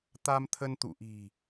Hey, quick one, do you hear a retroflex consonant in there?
no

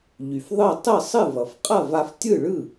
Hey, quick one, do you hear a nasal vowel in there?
no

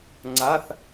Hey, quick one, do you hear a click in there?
yes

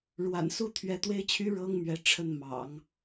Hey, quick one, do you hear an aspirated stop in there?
yes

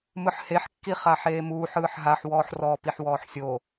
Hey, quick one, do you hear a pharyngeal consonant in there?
yes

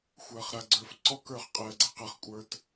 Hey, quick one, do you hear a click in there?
yes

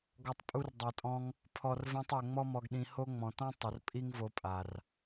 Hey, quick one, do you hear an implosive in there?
yes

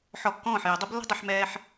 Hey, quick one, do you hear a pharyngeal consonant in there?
yes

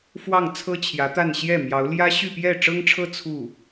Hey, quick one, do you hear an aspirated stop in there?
yes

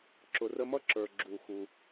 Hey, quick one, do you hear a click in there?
yes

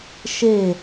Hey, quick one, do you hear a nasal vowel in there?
no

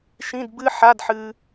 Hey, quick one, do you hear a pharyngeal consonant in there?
yes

